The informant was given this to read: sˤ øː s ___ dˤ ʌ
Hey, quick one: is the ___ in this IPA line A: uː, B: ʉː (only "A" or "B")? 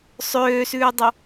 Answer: B